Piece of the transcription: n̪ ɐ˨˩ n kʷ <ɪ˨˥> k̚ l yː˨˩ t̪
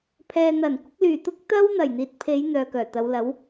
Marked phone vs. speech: correct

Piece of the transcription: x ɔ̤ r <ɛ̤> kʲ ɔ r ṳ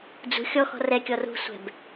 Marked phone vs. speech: incorrect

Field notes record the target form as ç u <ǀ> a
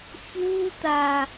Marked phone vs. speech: incorrect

